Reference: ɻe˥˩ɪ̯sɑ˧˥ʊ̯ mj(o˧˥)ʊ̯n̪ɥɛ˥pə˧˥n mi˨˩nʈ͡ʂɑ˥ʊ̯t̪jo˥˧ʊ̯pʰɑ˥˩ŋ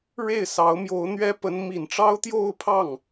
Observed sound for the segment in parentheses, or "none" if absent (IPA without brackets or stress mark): o˧˥